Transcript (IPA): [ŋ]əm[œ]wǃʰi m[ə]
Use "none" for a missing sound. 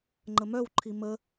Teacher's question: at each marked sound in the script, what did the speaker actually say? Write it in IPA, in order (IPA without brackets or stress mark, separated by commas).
ŋ͡ǃ, œ, ə